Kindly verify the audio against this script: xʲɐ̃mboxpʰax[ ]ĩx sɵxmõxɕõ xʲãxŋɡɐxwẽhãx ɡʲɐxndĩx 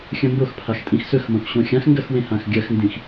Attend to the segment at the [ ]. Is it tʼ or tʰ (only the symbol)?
tʼ